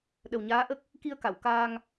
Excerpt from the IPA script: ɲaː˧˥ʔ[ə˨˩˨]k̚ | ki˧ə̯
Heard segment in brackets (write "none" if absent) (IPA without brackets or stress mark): ə˦˥